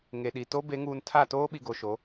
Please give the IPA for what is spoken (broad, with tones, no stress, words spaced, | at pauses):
ŋe˨ɗi˨ to˦ be˨˦ŋuː˨n tʰa˦˨ toː˦ɓi˨ ɡo˨ʃo˨˦